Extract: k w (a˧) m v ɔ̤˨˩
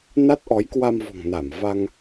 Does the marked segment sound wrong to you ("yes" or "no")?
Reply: no